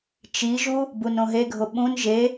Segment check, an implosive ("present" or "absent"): present